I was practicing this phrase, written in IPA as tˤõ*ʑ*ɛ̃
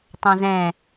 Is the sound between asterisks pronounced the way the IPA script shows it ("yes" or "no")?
no